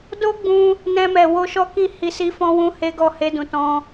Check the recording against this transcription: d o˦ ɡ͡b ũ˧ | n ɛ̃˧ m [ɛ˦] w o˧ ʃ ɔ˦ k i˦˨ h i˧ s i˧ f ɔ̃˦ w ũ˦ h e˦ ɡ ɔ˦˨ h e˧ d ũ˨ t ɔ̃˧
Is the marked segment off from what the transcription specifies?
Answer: yes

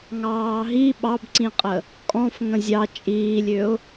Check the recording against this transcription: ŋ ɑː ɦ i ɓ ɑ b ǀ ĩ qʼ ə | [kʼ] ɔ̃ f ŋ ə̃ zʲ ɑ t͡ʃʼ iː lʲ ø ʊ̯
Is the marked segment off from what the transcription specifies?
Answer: no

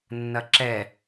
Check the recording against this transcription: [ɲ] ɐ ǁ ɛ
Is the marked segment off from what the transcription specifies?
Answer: yes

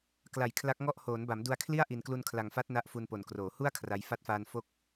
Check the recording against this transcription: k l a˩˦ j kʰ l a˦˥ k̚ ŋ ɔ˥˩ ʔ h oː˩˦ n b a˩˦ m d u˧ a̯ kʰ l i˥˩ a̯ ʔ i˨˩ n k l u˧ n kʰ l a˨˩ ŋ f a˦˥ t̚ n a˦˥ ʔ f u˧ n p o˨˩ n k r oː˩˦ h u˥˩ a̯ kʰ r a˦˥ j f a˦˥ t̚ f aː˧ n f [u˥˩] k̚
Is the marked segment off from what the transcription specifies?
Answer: yes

